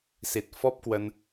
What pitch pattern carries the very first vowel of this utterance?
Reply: low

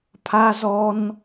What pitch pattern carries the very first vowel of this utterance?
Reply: high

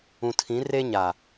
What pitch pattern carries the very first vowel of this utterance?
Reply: low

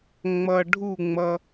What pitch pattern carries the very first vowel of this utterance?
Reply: low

